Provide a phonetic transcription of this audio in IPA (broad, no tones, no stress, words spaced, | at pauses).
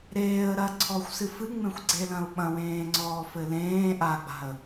ɾeːə̯ ɾɐ ǀʰɔxʷsɨfɨŋ͡mẽxʷ ɡ͡ǀelɐ̃ʊ̯ɓɐ̃wẽː ŋ͡ǀɔːfɘlẽː ʔaɡ͡ba̤ə̯